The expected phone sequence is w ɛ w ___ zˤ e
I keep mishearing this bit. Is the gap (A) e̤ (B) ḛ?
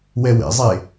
B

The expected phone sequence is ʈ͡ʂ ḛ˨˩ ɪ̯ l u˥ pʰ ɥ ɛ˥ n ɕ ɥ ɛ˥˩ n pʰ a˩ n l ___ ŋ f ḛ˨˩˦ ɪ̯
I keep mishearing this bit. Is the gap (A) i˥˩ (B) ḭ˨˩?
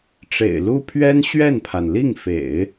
A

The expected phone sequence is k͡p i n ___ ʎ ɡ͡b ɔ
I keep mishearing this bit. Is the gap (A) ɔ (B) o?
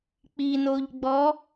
B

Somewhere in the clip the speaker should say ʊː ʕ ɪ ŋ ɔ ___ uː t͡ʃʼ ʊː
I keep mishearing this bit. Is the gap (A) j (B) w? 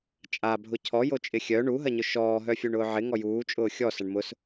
A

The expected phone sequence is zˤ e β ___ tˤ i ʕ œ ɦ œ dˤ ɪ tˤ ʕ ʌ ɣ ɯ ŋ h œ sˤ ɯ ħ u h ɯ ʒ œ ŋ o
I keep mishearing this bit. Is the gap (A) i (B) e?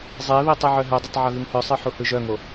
A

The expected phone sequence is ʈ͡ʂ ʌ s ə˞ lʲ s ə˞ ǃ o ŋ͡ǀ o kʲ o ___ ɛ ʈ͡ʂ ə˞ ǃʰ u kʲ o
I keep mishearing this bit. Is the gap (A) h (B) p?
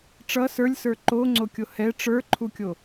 A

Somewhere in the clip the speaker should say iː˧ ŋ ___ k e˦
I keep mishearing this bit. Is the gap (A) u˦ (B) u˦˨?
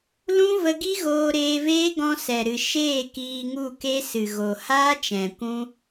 B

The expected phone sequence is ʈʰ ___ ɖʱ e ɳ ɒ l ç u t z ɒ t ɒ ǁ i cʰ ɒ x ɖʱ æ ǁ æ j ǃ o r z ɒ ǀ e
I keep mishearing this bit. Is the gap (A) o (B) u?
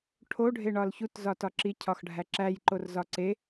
A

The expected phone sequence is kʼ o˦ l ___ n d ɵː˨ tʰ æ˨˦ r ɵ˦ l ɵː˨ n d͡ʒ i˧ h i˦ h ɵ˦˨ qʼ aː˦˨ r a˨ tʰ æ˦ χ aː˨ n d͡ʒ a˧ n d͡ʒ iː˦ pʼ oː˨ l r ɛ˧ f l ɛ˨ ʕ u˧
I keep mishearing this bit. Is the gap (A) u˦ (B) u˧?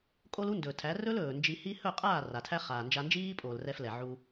A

